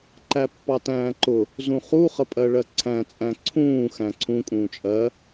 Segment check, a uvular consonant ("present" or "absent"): present